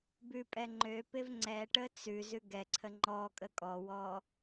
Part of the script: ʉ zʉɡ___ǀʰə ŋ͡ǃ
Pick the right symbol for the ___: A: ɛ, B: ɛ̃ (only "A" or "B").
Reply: A